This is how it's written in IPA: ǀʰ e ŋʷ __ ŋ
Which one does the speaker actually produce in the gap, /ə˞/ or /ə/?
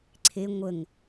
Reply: ə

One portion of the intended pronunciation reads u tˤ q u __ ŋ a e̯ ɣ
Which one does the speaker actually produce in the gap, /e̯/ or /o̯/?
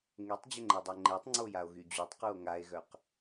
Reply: o̯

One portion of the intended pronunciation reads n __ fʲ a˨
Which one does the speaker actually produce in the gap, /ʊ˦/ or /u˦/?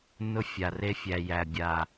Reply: ʊ˦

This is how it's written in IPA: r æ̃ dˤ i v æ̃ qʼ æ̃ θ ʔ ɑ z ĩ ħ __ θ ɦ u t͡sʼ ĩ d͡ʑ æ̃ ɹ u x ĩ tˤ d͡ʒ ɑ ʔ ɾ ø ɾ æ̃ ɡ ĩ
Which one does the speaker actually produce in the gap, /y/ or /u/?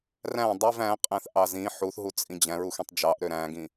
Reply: u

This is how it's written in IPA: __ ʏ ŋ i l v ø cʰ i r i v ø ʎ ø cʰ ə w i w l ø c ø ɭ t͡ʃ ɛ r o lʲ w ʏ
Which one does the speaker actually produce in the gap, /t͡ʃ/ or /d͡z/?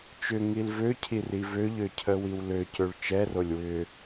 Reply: t͡ʃ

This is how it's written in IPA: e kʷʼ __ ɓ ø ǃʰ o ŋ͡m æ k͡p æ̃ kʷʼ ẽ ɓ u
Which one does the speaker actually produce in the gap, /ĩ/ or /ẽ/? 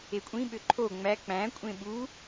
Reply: ĩ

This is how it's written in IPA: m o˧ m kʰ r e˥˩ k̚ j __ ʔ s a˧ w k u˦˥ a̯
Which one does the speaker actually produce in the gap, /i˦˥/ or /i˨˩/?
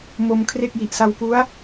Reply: i˨˩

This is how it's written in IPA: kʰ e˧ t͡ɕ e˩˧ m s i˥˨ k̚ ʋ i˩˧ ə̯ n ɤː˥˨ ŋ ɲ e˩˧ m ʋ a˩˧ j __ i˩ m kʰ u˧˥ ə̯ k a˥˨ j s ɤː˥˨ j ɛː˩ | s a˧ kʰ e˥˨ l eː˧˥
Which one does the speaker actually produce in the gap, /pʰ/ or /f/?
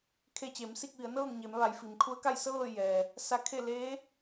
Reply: f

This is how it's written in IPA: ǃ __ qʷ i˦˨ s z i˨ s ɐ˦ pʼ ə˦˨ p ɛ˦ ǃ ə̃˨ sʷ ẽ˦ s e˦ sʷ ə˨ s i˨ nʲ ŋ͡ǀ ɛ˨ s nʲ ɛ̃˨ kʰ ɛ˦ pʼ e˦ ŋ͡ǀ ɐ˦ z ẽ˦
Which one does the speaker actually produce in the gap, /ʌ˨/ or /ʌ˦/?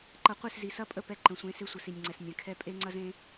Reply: ʌ˨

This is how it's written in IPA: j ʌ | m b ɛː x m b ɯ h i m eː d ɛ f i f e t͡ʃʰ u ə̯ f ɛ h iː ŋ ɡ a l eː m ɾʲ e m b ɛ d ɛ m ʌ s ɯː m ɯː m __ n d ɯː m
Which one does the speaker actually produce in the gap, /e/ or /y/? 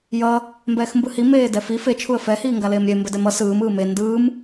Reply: e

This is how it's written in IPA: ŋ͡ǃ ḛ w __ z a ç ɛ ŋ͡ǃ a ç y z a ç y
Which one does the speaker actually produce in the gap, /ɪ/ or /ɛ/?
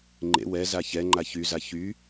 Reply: ɛ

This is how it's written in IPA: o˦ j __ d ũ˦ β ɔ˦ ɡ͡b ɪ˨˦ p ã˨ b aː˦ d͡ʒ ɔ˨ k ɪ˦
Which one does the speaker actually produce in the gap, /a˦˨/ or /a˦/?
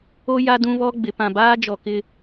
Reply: a˦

